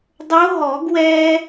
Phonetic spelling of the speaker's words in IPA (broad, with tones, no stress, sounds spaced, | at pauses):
dˤ o˧˥ ɦ ɔ˨˩˦ ɡ w ɛː˥